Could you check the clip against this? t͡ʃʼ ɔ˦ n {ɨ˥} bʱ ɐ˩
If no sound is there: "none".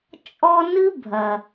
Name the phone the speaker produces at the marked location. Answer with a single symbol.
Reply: ɨ˥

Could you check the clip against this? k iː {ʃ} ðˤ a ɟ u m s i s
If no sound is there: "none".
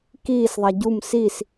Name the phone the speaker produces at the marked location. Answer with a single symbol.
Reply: s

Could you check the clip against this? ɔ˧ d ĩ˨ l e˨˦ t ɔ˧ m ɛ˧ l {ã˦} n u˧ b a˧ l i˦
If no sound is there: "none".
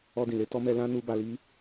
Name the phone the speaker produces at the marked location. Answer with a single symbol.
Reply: ã˦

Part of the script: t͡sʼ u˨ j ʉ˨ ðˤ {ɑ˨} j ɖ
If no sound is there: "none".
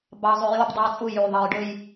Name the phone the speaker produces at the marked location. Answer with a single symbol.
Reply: ɑ˨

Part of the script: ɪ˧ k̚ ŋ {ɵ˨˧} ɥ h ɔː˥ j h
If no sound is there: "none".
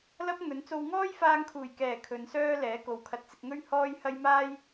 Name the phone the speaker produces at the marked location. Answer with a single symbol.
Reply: ɵ˥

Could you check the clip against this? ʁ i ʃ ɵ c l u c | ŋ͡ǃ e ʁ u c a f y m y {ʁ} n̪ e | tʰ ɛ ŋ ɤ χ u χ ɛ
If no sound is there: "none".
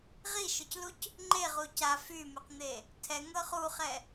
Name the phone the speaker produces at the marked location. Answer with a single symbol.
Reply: q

